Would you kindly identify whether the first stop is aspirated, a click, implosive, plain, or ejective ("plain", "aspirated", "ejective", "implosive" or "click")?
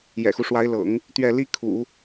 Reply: plain